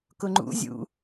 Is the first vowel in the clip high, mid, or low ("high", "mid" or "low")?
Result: high